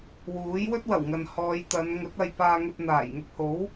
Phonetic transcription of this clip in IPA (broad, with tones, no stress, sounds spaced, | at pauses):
w uː˨˥ j w ɵ˥ t̚ w ɐ˨˩ w ŋ ɐ˨ n h ɔː˨˧ j t̪ ɐ˨˧ n ŋ ɵ˨˥ t̚ ɐ˧ j p aː˧ ŋ ɵ˧ t̚ n̪ aː˨˩ j ŋ ʊ˧ k̚ h o˨˥ w